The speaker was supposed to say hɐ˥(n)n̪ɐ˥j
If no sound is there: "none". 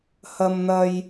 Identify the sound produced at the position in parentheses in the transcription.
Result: m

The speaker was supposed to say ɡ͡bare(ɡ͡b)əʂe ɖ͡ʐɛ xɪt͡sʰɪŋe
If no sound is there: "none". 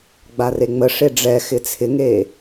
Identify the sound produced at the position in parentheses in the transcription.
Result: ŋ͡m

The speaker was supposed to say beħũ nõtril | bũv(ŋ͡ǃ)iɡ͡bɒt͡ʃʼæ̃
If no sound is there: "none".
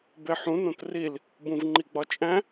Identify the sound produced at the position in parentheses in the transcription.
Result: ŋ͡ǃ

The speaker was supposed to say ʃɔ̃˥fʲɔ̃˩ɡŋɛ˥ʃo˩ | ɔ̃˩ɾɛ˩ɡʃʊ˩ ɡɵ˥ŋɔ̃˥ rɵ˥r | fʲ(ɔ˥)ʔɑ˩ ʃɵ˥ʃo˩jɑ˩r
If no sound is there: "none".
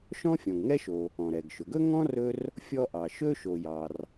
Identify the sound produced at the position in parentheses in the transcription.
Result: ɔ˥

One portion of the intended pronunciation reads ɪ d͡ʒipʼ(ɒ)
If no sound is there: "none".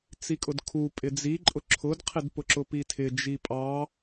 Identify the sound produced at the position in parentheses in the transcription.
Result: ɑ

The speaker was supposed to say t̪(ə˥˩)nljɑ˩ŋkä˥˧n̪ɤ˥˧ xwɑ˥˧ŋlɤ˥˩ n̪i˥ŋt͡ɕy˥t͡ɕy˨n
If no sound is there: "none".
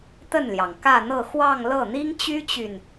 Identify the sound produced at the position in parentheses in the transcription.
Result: ə˥˩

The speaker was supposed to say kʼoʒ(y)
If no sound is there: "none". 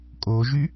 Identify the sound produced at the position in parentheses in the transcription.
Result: y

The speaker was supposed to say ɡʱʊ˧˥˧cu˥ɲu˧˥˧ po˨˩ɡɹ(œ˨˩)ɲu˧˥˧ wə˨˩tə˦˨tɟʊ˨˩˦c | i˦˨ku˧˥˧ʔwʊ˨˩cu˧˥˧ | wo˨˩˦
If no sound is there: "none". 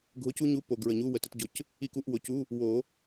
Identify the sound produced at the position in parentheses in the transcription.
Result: ə˨˩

